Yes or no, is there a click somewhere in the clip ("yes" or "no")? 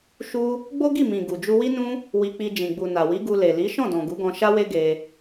no